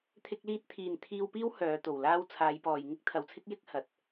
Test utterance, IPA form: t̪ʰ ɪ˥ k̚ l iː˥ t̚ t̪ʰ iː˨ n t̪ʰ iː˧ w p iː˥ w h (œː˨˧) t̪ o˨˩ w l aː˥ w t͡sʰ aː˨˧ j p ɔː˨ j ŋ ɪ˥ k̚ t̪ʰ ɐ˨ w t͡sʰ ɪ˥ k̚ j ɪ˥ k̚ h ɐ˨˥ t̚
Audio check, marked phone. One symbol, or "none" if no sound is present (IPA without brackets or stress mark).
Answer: œː˨˧